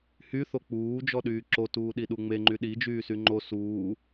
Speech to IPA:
hyθo k͡puːd͡ʒɔɗyː ǁotuːɗiɗu ŋ͡meŋ͡ǃy ɗid͡ʒyːsy ŋ͡ǃo suː

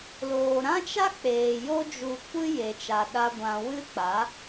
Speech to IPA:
loː˨ɾã˦t͡ʃa˦k͡peː˨ jo˦d͡ʒu˧ kʷɨ˦je˨t͡ʃa˨ ɗa˦ ɡʷã˧ wɨ˦k͡pa˨˦

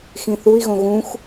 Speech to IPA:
xĩθui̯ɣõ ɣũx

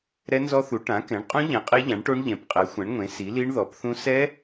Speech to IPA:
ɾɛ˦˥nzɔ˦˥θu˩˥ ʈã˩˥kɛ̃˩˥ɳqʼũ˦˥ ʎɛ̃˩˥qʼe˦˥ʎã˩˥ɳʈo˦˥ɳ ʎɛ̃˩˥pqʼɛ˩˥xʷɛ̃˩˥ɳŋʷẽ˩˥ si˩˥li˦˥ɳ ðɔ˩˥pθũ˦˥ sɛ˦˥

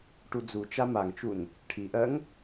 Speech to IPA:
ʈud͡zut͡ʃa maŋt͡ʃun | ʈʰiʔɜŋ

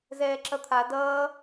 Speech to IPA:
zɛːǁʌt̪ʰa dʌː

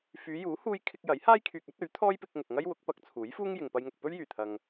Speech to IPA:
fyː˨˧juː˨˥ huː˥j kʰɪ˧k̚jɐ˨˥j haː˥jkʰyː˨k̚ɐ˨˥t̚ ɵ˨˥ɥ t̪ʰɔː˥jpɪ˧k̚ŋʊ˨k̚ŋɐ˥j wʊ˨˥k̚pɐ˨˥k̚t͡sʰuː˨˥jfuː˥ŋ jɪ˨ŋpɐ˧jŋʊ˨k̚ pɵ˥ɥjyː˨˩t̪ʰɐ˨ŋ

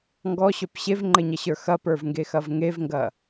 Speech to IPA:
ŋɡɔɕœp ɕevŋ͡ǃɘɲɐɕə˞ xɐpə˞vŋɡexɐv ŋevŋɡɐ

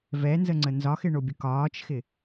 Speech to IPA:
vɛnzəŋ͡ǀə nzɒxɪɳobʲə kɒːt͡ʃxɪ

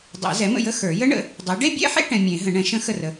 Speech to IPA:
dˤɛ̰˨˩˦zɛ˩˥mə̰˥˩jə˥˧ xə˞˨˩˦ jə˦˥ɳə̰˩˥ | dˤɛ˩˥ ɖe˥˧bʲɛ̰˥˧ħḛ˥˧ ʈɛ̃˨ mʲẽ˨˩˦ ɦə̃˨˩˦ɳɛ̃˩˥ ʃə̃˦˥ xə˥˩rə˨

